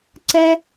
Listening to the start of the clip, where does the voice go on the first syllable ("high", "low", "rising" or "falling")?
high